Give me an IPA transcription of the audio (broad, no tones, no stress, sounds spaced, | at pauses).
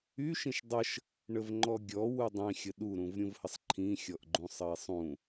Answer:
y ʃ ĩ ʃ dˤ ə ʃ | ɳ ə v ŋ͡ǃ ɔ ɡʲ ɔ w u dˤ ĩ xʲ ə ɗ u ɾ ũ v ɾʲ ũ v h ə sˤ ǃʰ ĩ xʲ ɔ ʔ ɡ͡ǃ ũ sˤ ə i̯ sˤ ũ